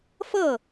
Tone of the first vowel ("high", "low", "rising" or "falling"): falling